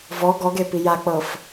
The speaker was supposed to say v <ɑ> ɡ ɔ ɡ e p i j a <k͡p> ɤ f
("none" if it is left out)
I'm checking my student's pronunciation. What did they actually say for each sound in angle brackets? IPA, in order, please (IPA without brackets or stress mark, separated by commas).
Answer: ɔ, k͡p